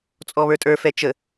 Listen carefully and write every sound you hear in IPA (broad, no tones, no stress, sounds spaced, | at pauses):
t͡sʼ ɔ β ə˞ tʼ ə˞ f ɛ t͡ʃ ə